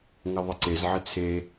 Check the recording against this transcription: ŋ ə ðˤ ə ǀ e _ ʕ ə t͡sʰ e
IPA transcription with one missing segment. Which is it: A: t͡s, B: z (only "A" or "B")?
B